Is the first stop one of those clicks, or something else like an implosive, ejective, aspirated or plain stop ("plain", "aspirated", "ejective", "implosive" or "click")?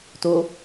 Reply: plain